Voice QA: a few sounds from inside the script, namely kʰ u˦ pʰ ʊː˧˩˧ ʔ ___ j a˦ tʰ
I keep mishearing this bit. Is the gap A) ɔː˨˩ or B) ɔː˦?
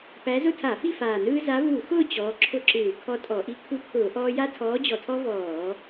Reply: B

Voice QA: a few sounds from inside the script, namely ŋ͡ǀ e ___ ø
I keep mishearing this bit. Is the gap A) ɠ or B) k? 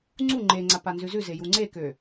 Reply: B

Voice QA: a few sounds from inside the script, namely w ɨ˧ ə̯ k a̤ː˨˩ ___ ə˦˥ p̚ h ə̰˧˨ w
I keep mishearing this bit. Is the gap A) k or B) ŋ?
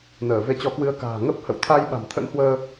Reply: B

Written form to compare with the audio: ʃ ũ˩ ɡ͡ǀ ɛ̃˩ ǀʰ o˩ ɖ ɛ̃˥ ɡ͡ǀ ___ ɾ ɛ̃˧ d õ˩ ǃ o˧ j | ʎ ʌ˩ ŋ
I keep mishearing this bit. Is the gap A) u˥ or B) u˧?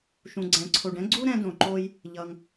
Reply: A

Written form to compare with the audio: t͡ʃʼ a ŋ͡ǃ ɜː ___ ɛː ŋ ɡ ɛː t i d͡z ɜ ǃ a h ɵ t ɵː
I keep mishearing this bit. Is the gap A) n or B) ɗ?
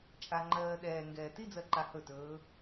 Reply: B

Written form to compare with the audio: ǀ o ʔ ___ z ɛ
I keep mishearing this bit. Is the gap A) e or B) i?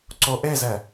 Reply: A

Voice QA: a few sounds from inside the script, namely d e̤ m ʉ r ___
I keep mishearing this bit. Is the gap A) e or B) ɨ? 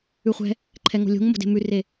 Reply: A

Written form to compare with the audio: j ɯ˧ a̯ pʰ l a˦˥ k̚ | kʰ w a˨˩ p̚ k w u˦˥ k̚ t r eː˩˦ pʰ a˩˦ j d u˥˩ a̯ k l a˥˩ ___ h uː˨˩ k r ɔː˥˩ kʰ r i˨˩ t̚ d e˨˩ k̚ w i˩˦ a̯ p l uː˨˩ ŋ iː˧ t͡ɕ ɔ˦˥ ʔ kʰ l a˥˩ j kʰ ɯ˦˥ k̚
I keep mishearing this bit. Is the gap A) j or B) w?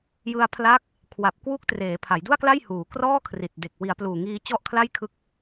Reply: A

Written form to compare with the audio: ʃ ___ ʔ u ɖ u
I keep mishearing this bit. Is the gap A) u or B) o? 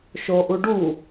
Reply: B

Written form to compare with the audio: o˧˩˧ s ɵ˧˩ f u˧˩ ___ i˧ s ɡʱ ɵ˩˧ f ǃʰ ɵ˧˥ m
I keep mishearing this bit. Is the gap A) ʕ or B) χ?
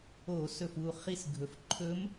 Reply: B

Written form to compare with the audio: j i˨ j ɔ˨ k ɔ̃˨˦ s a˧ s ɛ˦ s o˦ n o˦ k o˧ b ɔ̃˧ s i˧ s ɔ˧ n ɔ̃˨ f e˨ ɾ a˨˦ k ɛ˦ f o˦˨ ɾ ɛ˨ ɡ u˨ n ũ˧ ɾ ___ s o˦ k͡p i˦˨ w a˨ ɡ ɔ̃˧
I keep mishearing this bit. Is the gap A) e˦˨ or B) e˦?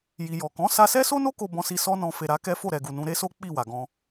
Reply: B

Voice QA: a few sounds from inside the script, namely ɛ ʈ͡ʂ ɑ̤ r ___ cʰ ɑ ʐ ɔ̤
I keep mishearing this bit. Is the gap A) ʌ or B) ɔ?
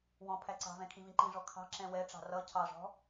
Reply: A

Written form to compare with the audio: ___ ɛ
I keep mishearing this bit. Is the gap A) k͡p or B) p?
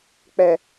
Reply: A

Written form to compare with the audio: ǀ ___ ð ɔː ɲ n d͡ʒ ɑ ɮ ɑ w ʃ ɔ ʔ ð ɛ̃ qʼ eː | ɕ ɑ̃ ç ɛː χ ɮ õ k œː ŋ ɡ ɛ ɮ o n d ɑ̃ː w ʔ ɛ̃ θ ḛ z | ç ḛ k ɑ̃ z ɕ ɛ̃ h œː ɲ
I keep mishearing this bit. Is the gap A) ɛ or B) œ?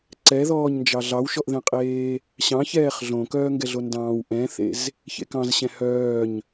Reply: A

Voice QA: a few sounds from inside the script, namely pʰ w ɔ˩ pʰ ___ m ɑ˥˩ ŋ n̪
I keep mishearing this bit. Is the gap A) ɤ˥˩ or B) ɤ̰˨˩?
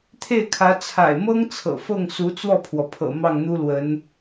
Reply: B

